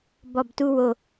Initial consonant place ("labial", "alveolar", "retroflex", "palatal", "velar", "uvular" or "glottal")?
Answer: labial